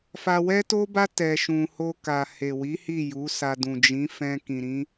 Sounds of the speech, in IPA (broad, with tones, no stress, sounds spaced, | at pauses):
f a˧ w ɛ˦ t o˦ b a˦ t ɛ˧ ʃ ũ˧ h o˧ k a˨ h e˨ w i˨˦ h i˦˨ j u˨˦ s a˧ d ũ˨ d͡ʒ ĩ˨˦ f ɛ̃˧ k ĩ˨ ɾ ĩ˨˦